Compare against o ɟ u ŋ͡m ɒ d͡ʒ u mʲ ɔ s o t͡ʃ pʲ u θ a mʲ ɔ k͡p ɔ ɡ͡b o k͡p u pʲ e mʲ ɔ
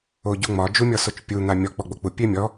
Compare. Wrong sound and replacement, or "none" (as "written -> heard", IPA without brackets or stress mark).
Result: θ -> n̪